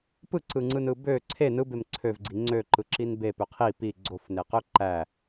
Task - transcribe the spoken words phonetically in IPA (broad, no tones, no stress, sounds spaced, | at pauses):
p ɯ ǀ ɯ ŋ͡ǀ ɯ n ɯ b ø ǀʰ e n ɯ b e m ǀʰ ø v ɡ͡ǀ i ŋ͡ǀ ø ǃ ɯ ǁ i n b e p ø qʰ i p i ɡ͡ǀ o f n e q ø ǃ æ